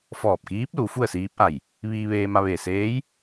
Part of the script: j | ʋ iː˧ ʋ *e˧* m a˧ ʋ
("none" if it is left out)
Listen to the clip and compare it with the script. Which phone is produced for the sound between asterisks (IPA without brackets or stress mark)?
eː˧